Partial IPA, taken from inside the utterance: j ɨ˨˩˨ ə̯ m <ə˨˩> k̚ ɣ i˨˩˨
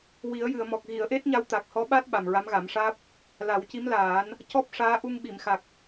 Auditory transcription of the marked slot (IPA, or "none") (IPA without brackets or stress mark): ɔ˨˩